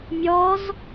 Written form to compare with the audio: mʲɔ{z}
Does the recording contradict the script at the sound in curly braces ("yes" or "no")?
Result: no